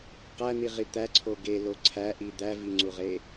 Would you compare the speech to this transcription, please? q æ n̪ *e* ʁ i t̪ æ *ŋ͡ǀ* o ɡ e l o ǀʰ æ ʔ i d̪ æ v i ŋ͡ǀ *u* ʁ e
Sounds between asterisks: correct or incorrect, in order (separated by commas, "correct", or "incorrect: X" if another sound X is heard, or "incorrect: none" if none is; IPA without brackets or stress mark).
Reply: incorrect: i, incorrect: ǀʰ, correct